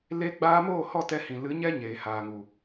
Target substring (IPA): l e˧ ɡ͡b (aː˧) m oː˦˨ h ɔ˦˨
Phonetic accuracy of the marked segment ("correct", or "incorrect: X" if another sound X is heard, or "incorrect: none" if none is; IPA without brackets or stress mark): correct